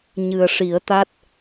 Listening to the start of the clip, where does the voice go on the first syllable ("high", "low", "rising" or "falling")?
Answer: low